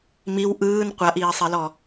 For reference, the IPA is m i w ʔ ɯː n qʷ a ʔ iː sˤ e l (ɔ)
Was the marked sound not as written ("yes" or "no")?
no